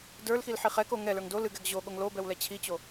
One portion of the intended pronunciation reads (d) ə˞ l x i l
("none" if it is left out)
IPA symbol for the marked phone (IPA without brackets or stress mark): d